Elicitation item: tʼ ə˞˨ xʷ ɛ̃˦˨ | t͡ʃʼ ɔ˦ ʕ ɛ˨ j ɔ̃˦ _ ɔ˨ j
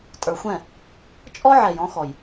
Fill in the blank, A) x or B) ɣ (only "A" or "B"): A